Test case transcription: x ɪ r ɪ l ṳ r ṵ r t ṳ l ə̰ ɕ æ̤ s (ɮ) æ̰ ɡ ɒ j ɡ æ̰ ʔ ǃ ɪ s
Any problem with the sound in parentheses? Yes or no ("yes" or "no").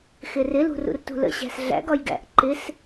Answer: no